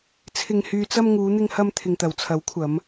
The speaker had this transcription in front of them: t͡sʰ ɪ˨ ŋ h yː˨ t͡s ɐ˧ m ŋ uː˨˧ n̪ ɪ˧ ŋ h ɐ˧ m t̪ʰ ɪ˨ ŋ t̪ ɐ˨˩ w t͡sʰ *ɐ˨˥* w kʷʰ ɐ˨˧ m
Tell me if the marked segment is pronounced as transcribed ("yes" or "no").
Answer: yes